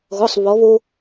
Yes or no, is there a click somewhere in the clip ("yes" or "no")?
no